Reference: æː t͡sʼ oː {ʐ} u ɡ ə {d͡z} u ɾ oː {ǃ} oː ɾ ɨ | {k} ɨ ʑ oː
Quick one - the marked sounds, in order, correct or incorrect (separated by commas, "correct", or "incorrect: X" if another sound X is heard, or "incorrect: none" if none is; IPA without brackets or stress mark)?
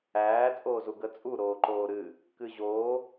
incorrect: z, incorrect: t͡sʼ, correct, correct